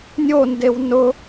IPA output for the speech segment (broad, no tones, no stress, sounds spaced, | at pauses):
nʲ o n d e w n ʊ